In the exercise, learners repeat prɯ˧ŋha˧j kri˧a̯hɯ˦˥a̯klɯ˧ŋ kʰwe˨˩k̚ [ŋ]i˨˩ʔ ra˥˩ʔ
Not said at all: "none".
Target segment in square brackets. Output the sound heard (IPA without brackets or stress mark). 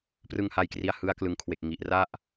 ŋ